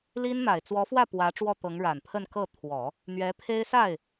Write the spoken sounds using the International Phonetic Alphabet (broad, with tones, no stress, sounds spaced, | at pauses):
l i˥ n n̪ a˨˩ ɪ̯ t͡s w ɔ˧˥ f w ä˥˩ p w ä˧˥ ʈ͡ʂ w ɔ˥˩ t̪ ɤ˧˥ ŋ ɻ a˨˩ n pʰ ə˥˧ n k ɤ˥˩ t̪ʰ w ɔ˨˩˦ | n̪ ɥ ɛ˧˥ pʰ e˥ ɪ̯ s a˥˩ ɪ̯